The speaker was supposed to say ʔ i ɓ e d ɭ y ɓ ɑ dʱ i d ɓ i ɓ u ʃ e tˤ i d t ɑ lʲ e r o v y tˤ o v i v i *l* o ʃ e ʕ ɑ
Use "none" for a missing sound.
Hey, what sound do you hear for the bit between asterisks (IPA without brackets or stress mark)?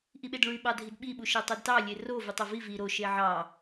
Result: ɾ